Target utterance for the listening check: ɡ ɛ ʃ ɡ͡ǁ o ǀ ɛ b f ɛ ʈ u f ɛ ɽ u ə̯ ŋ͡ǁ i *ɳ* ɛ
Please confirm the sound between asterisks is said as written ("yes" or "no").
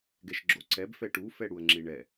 yes